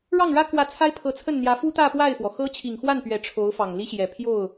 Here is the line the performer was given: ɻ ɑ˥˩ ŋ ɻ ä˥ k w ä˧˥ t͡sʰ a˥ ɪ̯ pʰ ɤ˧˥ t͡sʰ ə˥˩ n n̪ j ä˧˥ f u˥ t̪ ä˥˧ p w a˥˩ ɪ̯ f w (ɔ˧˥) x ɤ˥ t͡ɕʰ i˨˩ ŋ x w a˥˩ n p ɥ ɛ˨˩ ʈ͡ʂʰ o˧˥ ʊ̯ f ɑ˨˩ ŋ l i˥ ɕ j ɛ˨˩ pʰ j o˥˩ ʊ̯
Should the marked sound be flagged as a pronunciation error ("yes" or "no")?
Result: yes